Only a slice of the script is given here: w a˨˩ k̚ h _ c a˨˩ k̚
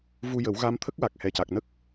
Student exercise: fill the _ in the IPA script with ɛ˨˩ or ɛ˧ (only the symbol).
ɛ˨˩